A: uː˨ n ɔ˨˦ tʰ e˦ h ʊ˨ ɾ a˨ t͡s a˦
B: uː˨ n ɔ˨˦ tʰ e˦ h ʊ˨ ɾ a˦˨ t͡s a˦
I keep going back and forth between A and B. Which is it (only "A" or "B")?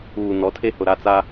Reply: B